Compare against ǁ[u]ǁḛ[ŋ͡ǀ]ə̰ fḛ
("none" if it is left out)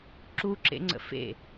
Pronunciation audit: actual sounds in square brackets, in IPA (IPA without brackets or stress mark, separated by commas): u, ŋ͡ǀ